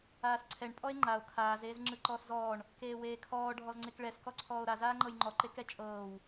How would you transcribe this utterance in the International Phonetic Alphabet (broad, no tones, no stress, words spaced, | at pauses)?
aːsǀʰɛɳ pʼɔe̯ŋ͡ǃao̯ kʰaːz eːzŋ͡ǁɯǃɔːszɔːɳ | keːweːkʰɔː ɖʱɔzŋ͡ǀekɭɛs kɔǀʰɔːo̯ɾa zaːŋ͡ǃɤjŋ͡ǃɔ ǃekɛt͡ʃʼɤːw